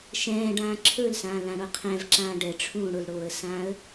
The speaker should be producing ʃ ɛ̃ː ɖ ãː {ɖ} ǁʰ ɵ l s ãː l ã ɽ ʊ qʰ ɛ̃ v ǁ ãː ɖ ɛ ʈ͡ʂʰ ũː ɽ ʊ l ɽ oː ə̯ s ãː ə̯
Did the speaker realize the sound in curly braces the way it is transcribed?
no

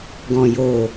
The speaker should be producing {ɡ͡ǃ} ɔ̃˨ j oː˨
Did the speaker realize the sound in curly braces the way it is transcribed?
no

